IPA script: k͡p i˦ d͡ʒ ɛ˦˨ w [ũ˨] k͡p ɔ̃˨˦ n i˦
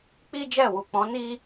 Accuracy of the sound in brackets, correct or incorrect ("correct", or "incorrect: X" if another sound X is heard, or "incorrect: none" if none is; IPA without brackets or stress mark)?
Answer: incorrect: u˨